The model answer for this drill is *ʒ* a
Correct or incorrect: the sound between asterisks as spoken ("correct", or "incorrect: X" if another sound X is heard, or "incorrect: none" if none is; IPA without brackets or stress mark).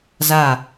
incorrect: z